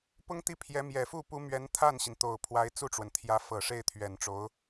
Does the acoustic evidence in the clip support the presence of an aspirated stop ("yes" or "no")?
yes